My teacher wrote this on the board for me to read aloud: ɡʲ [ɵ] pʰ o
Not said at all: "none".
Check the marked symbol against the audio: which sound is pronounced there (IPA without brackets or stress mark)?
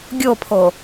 o